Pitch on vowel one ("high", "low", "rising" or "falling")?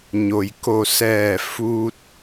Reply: low